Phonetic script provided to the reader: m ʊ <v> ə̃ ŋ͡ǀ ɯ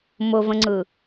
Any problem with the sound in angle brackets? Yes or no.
no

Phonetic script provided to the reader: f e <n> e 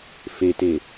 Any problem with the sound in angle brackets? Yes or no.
yes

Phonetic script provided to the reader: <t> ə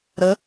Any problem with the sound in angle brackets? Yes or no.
yes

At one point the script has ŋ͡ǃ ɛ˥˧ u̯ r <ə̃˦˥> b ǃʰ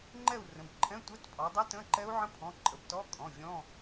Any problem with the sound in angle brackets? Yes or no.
yes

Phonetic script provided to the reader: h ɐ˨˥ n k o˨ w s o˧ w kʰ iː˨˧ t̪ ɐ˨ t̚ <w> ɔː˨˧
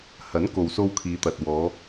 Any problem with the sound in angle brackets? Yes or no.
no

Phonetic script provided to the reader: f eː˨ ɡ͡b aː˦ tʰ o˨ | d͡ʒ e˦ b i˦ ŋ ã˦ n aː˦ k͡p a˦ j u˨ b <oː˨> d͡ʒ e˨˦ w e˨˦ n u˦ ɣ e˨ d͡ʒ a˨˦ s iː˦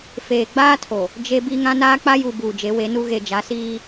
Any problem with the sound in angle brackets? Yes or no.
yes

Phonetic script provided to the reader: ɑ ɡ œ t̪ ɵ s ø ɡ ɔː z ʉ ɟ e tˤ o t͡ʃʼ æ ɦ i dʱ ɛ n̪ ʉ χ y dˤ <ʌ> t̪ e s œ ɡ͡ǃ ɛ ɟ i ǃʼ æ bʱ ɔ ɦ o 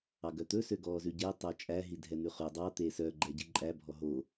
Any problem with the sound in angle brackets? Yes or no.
yes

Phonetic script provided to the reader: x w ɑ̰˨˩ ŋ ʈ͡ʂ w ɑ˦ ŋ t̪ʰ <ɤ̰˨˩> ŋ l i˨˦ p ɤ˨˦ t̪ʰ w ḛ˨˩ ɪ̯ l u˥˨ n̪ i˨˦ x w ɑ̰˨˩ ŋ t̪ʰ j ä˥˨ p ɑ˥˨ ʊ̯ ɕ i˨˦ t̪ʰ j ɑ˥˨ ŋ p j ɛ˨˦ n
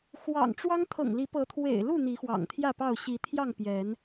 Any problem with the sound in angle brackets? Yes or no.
no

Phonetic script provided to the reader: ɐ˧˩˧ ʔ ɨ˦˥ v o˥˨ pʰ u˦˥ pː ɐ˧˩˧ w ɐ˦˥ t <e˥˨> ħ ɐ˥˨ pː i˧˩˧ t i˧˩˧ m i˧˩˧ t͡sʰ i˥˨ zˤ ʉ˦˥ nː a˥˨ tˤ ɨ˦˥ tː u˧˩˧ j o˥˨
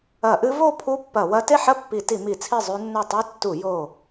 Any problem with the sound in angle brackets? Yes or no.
no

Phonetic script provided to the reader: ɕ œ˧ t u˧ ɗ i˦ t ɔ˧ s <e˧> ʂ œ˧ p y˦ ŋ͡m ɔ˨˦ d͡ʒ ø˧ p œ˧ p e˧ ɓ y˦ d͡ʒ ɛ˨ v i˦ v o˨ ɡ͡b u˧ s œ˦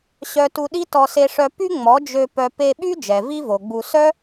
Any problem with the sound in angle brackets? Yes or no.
no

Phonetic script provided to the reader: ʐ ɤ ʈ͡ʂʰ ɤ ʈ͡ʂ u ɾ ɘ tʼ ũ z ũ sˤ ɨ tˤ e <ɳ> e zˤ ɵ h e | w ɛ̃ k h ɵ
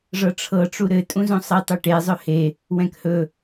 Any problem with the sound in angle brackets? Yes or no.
yes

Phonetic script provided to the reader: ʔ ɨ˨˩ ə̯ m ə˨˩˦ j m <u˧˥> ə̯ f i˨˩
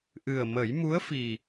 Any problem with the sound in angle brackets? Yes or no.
no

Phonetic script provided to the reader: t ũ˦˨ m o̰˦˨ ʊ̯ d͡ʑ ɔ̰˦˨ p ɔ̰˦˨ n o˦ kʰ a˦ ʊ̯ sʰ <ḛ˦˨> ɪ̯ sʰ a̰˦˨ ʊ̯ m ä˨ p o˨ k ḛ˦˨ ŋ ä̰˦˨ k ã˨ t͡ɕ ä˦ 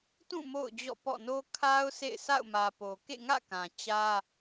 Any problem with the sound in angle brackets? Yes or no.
no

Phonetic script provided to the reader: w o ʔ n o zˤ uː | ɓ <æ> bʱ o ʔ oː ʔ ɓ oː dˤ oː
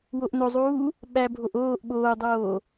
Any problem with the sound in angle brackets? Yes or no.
no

